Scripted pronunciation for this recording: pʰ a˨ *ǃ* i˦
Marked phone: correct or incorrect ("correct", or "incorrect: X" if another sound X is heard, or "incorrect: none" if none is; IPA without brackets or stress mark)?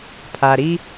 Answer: incorrect: ɾ